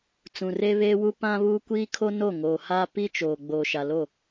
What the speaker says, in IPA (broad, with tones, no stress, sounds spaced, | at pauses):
t͡s ũ˨ r e˦ β eː˦ w u˦ p ã˦ β uː˦ kʷ iː˦ kʰ o˦ n o˦˨ ŋ oː˨ h a˦ p i˦ t͡ʃ oː˨ ɡ͡b oː˨ ʃ a˨ l o˦˨